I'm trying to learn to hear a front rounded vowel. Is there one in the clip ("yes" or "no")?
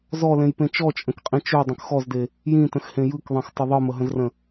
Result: yes